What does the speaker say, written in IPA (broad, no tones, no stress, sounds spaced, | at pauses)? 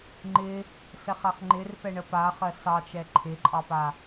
ŋ͡ǃ ɪ | s ɛ χ a χ ŋ͡ǃ ɪ r p ɛ ɳ ə p a χ ɜ s ɑ t͡ʃ ɛ ǃʰ ɪ ǃʼ ɑ p a